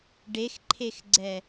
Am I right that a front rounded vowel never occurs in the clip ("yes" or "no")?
yes